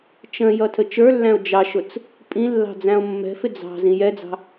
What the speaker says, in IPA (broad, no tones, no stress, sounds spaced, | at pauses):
t͡ʃ ə̃ j ʌ tʰ ə t͡ʃ ə˞ lː æ̃ o̯ d͡ʒ ɑ ʃ ʊ t͡s | pʼ ĩ lː ɑ̤ d͡z æ̃ o̯ mː ɛ̤ f ɪ d͡z ɑ̤ z ĩ j ɛ d͡z ɑ̤